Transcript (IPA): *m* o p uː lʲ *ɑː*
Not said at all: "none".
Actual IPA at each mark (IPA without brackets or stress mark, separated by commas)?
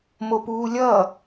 m, ʌː